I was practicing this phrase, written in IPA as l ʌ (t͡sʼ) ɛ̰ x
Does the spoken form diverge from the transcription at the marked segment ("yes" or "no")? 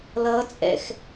no